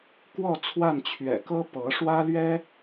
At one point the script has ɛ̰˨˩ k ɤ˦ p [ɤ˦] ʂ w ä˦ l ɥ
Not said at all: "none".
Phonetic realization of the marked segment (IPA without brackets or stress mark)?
ɤ˨˦